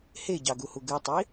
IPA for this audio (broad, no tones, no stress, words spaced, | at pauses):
heɟɑɡuhu ɡɯtˤi